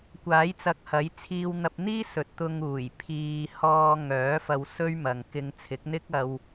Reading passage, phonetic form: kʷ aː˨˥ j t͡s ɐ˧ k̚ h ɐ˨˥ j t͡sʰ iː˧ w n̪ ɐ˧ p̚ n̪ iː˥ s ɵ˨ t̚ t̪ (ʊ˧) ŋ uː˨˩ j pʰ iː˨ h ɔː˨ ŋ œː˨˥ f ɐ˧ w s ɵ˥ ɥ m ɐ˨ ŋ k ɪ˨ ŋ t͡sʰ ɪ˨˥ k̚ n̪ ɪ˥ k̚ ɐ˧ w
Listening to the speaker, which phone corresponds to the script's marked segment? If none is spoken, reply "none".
ʊ˧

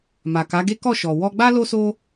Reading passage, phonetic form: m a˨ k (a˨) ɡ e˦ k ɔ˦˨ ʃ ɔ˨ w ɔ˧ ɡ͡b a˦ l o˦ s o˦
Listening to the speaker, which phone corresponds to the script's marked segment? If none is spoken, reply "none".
a˨˦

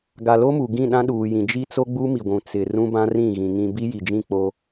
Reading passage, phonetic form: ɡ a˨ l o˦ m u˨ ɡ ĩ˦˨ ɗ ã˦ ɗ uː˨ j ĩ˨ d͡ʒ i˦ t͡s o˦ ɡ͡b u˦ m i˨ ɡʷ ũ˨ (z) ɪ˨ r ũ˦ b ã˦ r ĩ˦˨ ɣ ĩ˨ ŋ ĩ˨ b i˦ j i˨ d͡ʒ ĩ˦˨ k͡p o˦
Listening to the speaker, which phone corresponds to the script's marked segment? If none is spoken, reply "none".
t͡s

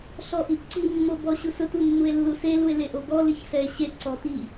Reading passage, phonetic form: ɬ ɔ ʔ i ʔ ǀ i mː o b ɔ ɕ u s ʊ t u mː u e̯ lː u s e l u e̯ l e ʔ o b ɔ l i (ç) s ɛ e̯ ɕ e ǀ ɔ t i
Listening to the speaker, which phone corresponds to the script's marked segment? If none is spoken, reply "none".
ç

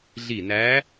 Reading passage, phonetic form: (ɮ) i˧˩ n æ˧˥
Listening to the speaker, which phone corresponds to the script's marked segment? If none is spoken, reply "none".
ɮ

